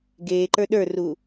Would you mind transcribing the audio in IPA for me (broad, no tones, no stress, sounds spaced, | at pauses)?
ɡ eː ǃ ə˞ ɗ ə˞ r uː